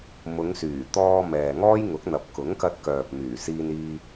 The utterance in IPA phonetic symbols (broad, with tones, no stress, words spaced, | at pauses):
mʊ˨˧ŋsyː˨˩t̪ɔː˧ mɛː˨ŋɔː˥jŋʊ˨˥k̚n̪ɐ˨p̚ kʊ˨˥ŋkɐ˧t̚kœː˨p̚ myː˨˩siː˧niː˧